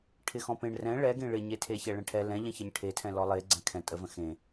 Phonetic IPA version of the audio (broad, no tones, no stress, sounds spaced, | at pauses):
ʈʰ ɪ x ɔ̃ p ẽ ɳ r ɛ̃ ɭ ɛ ɡ ẽ ɭ ɪ ɲ e tʰ e ç ɛ ɭ ɛ̃ ʈʰ ɛ l ɛ̃ ʎ ɛ̃ ç ɪ ɲ ʈʰ e tʰ ɛ̃ l ɔ lˠ e ɡ͡ǀ ɛ̃ kʰ ɛ̃ tʼ ə v ə̃ x ẽ